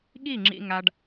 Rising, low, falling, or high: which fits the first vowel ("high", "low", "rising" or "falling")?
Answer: falling